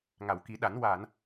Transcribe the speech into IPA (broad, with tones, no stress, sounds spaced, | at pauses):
ŋ a˨˩˨ w k i˨˩˦ ɗ a˨˩˦ n w a˨˩˨ n